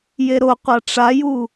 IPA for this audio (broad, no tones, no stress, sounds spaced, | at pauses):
j e ɾ o qʷ a ʈ͡ʂ a j u